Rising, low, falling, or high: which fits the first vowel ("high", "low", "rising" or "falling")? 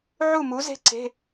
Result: falling